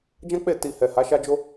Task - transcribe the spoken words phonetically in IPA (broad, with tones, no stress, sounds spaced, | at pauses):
d͡ʒ ã˦ k͡p e˦˨ t i˧ h ɛ˨ h a˨˦ ʃ a˦ d͡ʒ o˦